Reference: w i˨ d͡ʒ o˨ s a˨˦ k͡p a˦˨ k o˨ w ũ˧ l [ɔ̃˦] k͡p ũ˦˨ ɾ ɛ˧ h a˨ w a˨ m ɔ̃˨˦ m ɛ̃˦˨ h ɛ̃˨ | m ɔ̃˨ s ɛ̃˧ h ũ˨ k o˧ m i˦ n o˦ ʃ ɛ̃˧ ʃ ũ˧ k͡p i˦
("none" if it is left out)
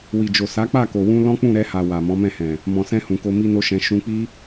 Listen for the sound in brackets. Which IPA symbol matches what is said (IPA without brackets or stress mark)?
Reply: ɔ̃˦